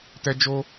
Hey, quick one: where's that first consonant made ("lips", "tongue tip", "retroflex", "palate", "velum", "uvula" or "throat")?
tongue tip